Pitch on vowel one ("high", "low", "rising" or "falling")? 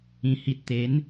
low